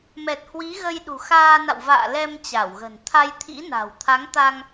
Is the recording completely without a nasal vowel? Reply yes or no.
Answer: yes